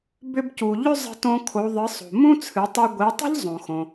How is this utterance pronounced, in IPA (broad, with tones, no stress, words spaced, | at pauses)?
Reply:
bʏ˧bcu˩ ʎʏ˥ zˤə̤˧tõ˧ kʰo˩˧ðˤɨ˩˧sˤo̤˩ mũ˥t͡sʰɨ˩˧tˤi˧ ɡʷi˩˧tˤə̤˥ʎ zˤõ˩xõ˩